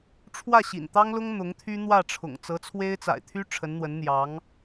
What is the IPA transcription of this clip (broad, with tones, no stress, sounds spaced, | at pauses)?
ʈ͡ʂʰ w ä˥˩ ɕ ḭ˨˩ n t̪ ɑ˥ ŋ l ʊ˥ ŋ n̪ ʊ˧˥ ŋ t̪ʰ y˥ n̪ w ä˥˩ ʈ͡ʂʰ ʊ̰˨˩ ŋ t͡s ɤ˧˥ t͡sʰ w e˥ ɪ̯ t͡s a̰˨˩ ɪ̯ t̪ʰ y˥ ʈ͡ʂʰ ə˧˥ n n̪ w ə˧˥ n n̪ j ɑ˧˥ ŋ